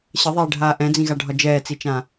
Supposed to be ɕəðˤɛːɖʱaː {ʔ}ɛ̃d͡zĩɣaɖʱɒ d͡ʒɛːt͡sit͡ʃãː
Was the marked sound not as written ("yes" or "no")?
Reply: no